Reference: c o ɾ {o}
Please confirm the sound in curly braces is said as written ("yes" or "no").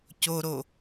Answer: yes